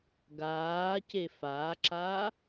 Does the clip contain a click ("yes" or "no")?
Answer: yes